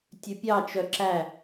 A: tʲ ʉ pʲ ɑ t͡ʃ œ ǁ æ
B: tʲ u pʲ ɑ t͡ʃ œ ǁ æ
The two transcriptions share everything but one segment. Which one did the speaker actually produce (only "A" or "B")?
A